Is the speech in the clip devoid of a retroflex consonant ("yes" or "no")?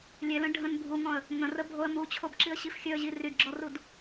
no